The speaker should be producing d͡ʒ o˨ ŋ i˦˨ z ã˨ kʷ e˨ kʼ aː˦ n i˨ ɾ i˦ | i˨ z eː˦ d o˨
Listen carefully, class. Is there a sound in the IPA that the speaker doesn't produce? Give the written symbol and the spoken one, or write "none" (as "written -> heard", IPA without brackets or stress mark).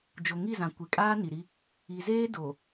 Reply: none